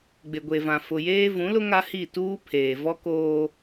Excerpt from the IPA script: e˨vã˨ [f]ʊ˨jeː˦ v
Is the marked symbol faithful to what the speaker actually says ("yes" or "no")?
yes